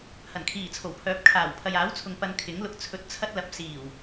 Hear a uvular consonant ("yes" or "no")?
no